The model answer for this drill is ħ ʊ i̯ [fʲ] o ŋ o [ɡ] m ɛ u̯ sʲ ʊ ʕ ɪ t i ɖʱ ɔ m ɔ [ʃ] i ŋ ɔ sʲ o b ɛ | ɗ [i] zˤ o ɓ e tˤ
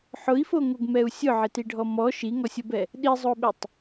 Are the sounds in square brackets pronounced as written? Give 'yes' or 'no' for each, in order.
no, yes, yes, yes

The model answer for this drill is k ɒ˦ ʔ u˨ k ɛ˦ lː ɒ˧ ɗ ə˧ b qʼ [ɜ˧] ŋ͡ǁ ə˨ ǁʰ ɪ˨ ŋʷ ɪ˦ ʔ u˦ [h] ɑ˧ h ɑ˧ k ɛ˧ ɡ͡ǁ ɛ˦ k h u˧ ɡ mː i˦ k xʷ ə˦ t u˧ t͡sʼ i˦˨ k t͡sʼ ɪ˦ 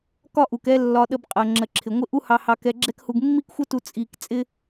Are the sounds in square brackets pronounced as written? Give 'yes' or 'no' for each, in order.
no, yes

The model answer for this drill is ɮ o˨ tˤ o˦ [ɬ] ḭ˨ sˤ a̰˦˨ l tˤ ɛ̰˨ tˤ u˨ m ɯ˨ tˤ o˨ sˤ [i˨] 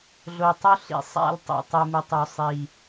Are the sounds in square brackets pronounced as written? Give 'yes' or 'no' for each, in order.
yes, yes

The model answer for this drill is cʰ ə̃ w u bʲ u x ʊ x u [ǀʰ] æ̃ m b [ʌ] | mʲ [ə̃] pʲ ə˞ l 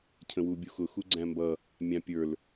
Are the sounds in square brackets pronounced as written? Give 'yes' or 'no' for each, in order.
no, yes, no

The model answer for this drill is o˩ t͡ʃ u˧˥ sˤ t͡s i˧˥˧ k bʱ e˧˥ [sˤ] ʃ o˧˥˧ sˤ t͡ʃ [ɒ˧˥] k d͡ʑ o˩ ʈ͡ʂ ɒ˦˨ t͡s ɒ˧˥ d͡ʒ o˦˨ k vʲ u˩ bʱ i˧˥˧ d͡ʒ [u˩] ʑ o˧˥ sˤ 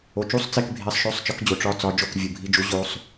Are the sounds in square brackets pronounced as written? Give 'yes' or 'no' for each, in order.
yes, yes, no

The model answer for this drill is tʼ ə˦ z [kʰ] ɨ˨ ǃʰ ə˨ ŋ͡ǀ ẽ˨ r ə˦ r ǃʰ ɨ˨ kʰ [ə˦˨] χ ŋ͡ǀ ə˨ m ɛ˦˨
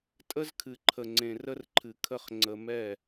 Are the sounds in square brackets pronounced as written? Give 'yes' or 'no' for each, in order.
yes, yes

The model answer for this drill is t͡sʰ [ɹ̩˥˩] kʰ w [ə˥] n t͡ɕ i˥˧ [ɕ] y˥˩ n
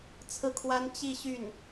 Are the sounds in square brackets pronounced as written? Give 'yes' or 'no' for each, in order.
yes, no, yes

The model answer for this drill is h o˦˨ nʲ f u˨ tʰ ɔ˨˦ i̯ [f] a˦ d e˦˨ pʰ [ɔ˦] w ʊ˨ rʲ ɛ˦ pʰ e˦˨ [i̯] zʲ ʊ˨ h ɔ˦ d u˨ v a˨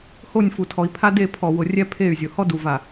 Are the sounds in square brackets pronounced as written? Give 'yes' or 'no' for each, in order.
no, no, no

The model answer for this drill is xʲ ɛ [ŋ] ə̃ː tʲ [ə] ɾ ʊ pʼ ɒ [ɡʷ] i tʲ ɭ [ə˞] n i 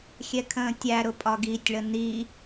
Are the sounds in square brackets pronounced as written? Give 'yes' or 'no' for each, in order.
no, no, no, no

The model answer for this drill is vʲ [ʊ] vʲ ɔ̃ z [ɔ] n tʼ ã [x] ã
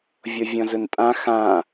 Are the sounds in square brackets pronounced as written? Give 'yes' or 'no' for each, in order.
no, no, yes

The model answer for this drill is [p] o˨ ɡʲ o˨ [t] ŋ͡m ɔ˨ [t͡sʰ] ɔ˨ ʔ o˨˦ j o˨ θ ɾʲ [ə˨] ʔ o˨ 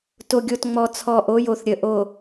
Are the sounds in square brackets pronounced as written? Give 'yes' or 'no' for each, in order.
no, yes, yes, yes

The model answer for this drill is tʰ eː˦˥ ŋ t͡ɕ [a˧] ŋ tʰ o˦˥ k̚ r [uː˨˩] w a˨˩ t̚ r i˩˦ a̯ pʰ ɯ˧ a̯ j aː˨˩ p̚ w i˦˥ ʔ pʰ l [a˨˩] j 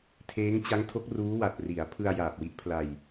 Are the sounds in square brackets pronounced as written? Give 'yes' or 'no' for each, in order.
no, no, no

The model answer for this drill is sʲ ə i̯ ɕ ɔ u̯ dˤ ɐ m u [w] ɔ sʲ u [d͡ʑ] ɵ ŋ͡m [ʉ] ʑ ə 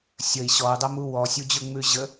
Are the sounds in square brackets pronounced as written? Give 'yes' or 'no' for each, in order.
yes, yes, yes

